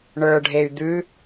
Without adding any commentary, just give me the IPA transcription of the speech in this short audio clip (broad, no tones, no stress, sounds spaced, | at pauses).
ɳ ə˞ ɖʱ e y̯ d̪ ʉ